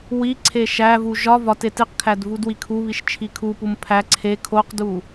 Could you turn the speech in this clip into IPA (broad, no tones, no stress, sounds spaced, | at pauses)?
w i ǀʰ e ʃ æ v u ʒ ɒ v ɒ t e t i q kʰ æ d v u d w i kʰ u β i ʃ t͡ʃʰ i kʰ u p u m pʰ æ ǀʰ e kʰ o q d u